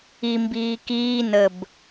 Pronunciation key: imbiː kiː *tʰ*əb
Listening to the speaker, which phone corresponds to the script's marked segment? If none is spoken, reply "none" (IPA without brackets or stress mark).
n